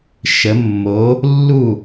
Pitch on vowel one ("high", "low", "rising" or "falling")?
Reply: rising